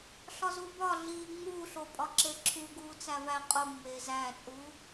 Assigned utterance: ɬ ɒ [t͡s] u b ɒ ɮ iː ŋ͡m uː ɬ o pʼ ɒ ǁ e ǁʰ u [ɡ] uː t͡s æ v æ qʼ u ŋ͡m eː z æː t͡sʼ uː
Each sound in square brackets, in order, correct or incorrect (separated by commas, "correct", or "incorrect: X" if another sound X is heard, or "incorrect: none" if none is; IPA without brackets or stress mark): incorrect: z, correct